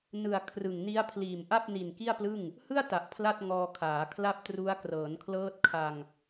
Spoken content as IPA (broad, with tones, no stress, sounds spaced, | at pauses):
n ɯ˨˩ a̯ kʰ r ɯ˨˩ ŋ n i˦˥ a̯ pʰ l iː˨˩ m ʔ a˥˩ p̚ n i˨˩ n k i˥˩ a̯ p l ɯ˥˩ ŋ | h ɯ˥˩ a̯ t a˨˩ ʔ pʰ l a˥˩ t̚ ŋ ɔː˧ kʰ aː˩˦ kʰ l a˥˩ p̚ t r u˦˥ a̯ k r ɤː˩˦ n kʰ l ɤː˦˥ t̚ kʰ a˧ ŋ